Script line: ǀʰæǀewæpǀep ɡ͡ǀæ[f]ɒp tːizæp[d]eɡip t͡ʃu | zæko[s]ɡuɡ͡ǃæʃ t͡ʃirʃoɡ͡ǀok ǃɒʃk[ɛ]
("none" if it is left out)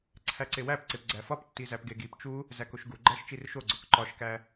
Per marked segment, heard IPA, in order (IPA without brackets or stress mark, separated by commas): f, ɡ, ʃ, æ